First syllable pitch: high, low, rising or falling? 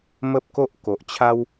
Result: high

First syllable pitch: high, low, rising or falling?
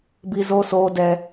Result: high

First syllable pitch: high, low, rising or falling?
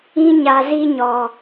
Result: high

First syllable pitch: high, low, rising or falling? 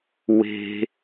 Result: low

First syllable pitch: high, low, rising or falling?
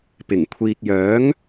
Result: low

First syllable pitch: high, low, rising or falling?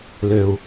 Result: low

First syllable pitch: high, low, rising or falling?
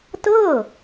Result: falling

